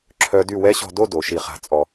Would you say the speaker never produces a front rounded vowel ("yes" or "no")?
no